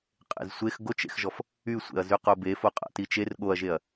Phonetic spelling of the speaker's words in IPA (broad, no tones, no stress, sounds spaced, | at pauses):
qʼ ḛ z sʷ e x ɡ o t͡ʃ ḛ x ʒ ɔ f | y sʷ ḛ ɐ̯ z y q o b e f o qʼ a̰ t i t͡ʃ e r ɠ o ɐ̯ ʒ e ɐ̯